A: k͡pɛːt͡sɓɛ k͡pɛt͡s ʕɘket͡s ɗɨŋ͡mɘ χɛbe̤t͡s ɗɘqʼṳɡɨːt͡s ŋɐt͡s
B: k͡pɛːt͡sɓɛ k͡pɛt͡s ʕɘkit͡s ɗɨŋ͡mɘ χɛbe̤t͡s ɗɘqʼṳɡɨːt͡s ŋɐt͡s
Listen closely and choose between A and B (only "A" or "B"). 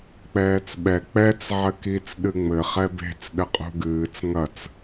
B